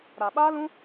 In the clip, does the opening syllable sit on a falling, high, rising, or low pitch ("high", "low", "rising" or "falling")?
low